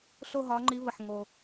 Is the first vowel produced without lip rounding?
no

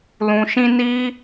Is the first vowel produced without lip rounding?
no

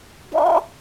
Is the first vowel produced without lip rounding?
no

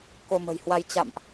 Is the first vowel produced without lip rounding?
no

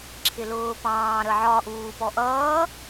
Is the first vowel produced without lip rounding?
yes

